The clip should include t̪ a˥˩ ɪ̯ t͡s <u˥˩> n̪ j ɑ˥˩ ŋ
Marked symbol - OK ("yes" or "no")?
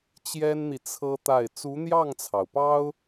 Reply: no